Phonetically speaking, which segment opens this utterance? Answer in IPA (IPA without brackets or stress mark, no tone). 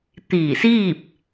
t̪